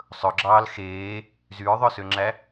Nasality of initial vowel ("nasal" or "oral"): oral